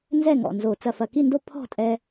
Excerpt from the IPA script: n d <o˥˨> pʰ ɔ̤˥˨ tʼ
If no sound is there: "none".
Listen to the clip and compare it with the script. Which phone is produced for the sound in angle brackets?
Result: o˥˨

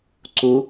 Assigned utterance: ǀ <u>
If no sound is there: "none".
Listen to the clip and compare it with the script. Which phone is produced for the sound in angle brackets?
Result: u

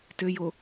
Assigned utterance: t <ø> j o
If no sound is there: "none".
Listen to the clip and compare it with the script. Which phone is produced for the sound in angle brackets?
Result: ø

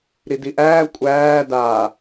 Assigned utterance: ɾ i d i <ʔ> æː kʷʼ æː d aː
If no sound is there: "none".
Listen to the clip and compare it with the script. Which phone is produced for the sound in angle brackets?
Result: ʔ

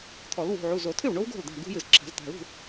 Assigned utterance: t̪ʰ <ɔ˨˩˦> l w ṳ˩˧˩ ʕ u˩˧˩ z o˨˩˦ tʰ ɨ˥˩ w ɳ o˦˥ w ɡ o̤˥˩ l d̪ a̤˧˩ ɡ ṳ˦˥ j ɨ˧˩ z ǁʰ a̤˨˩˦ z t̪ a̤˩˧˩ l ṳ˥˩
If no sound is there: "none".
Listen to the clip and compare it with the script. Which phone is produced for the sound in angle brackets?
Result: ɔ˨˩˦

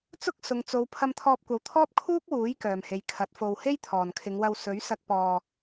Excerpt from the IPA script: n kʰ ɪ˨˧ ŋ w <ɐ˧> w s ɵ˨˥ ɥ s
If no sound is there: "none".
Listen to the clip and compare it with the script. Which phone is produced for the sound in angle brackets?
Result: ɐ˧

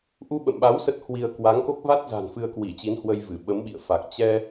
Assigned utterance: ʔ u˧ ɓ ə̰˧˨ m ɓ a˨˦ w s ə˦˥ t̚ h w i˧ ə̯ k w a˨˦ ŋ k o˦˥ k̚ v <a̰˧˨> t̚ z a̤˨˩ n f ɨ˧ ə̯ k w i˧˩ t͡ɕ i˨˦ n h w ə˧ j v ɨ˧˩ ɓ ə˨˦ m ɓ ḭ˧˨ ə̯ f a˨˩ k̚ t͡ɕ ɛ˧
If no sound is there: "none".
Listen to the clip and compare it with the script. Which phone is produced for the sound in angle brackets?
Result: a˦˥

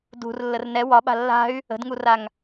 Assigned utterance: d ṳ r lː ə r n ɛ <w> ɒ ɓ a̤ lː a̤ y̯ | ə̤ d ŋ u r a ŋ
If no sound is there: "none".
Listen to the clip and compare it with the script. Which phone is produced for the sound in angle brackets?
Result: w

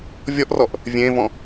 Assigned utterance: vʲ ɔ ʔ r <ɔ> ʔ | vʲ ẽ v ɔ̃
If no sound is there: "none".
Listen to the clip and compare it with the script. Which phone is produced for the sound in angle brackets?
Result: ɔ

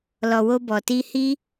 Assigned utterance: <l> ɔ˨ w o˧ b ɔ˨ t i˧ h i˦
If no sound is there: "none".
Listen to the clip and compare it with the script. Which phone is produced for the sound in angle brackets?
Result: l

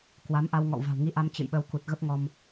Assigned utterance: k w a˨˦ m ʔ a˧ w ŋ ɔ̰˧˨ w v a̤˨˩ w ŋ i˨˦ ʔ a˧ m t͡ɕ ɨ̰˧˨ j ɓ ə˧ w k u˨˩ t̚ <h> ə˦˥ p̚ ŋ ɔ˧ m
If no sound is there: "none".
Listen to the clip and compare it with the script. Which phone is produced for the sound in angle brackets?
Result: ɣ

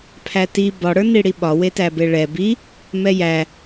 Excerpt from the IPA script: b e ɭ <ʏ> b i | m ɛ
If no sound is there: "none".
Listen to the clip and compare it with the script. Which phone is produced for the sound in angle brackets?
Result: ɛ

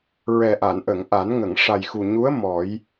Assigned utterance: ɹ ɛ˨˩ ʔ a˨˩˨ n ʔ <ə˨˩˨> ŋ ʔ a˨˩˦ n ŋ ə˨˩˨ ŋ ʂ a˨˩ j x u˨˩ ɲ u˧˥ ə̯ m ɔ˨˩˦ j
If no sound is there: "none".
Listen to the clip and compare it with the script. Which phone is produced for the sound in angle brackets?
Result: ə˨˩˨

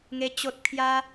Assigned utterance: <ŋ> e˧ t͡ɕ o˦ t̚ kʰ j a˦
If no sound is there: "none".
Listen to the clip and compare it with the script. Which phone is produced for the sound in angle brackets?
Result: ŋ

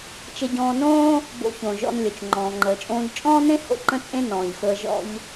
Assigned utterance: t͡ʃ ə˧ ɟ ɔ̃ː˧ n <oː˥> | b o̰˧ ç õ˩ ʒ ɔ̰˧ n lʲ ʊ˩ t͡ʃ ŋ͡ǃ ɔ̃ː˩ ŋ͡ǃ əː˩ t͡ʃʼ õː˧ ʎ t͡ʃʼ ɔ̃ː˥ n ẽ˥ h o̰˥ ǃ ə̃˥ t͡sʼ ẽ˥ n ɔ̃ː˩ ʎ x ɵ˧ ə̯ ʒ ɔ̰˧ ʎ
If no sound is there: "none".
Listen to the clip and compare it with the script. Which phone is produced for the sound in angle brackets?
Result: õː˥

